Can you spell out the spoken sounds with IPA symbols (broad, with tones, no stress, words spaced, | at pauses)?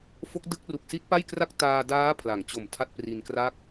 fo˦˥k̚ dɯ˦˥k̚ ru˨˩k̚si˦˥t̚pa˥˩jkra˥˩k̚ taː˧daː˦˥ pʰla˩˦ŋt͡ɕo˨˩m tʰa˥˩t̚pri˧nkra˥˩k̚